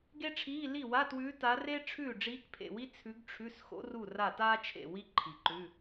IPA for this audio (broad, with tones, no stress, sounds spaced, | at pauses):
ɡ e˥ ʈ͡ʂʰ iː˧˥˧ l i˥˩ w a˧˥˧ t w ʉː˧˥ t a˧˥ r e˥ ʈ͡ʂʰ ʉː˥˩ ɖ͡ʐ iː˧˥ k pʰ ḛ˥˩ w i˥ t͡sʰ ʉ˧˥ ɡ ʈ͡ʂʰ ʉ˧˥˧ s x o̰˥ r u˥˩ r a˥˩ t aː˥ t͡ʃʰ ḛ˥˩ w i˥ ǃʰ i˨˩ ǃ ʉ˧˥˧